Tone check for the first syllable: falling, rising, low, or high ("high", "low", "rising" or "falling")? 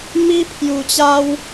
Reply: high